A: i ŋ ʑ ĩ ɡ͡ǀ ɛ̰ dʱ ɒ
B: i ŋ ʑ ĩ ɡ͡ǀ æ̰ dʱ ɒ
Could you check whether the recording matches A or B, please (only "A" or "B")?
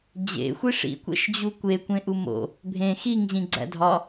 B